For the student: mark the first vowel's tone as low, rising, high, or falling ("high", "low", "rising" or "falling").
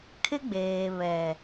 high